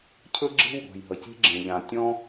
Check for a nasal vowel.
present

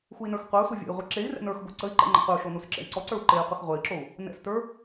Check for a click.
present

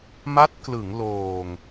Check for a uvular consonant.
absent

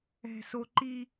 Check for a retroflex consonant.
absent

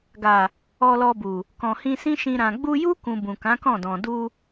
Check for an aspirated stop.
absent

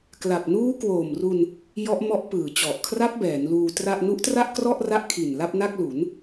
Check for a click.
absent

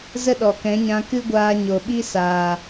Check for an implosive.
present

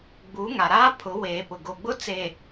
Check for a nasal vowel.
absent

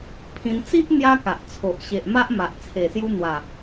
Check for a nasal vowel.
present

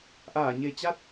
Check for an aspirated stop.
absent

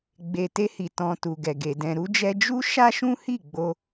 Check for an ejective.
absent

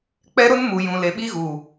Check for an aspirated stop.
absent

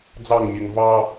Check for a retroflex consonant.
absent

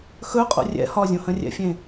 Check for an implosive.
absent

